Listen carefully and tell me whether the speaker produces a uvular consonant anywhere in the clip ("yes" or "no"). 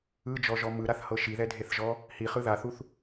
yes